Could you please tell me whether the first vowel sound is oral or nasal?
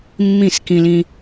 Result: nasal